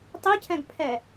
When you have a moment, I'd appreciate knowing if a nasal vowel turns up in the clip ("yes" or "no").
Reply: yes